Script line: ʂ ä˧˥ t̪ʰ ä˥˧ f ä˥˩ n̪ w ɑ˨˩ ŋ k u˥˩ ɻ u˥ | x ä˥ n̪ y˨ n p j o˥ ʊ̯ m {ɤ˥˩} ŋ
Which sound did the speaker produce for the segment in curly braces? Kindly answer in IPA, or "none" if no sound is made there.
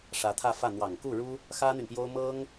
ɤ˥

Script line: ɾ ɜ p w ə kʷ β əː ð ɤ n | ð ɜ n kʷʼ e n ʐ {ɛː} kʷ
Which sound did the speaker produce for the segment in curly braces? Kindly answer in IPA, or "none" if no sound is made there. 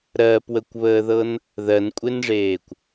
eː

